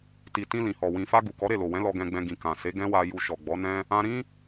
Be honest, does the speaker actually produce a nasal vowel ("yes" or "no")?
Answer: yes